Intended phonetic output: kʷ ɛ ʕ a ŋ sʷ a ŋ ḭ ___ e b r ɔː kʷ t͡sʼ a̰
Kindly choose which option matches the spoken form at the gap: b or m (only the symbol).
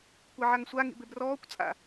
b